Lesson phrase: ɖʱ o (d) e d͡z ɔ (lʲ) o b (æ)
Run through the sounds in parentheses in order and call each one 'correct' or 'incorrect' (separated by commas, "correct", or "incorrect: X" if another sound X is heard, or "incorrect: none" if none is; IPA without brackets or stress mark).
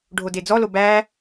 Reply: correct, incorrect: l, correct